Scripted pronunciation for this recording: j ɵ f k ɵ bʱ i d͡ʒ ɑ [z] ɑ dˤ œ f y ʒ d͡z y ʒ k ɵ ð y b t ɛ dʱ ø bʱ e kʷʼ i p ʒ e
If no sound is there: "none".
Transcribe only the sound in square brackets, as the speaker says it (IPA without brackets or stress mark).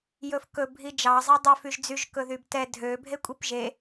zˤ